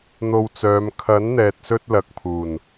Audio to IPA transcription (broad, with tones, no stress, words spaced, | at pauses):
n̪o˧wt͡sœː˨˧m kʰɐ˨˥nn̪ɛː˨t̚sɵ˧t̚ lɐ˨k̚pʰuː˨˩n